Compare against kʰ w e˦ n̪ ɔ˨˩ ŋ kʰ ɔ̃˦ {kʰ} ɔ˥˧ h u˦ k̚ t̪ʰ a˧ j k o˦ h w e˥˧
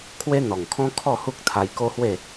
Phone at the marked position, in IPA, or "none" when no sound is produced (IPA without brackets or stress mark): kʰ